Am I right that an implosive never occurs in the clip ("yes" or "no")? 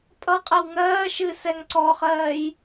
yes